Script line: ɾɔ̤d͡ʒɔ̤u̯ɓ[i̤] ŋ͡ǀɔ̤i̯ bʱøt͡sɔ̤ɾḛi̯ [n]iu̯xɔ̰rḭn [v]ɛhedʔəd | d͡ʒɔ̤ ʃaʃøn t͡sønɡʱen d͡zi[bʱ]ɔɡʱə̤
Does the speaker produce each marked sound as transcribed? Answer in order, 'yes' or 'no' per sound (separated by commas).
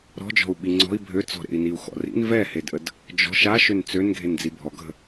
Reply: no, yes, yes, yes